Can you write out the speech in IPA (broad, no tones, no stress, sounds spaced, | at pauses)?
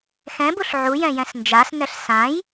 x ɛ̃ b u ɬ ʕ u j ɛ̃ j ɛ̃ s n d͡ʒ a s n ɛ ɬ s ã j